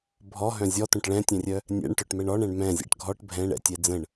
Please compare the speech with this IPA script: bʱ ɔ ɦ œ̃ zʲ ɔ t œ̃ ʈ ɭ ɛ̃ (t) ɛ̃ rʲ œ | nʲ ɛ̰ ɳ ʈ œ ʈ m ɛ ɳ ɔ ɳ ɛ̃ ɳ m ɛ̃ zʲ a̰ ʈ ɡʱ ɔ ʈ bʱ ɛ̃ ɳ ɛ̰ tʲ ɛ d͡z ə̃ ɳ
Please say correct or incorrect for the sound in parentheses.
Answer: incorrect